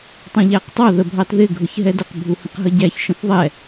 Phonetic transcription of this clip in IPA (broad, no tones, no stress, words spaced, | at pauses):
tˤũʎæqtˤɑ ðəbʱɑtðɪ ɡʱʊçɦɛdəq bʱuhə̃qɦəɟæç ʃə̃θðˤɛ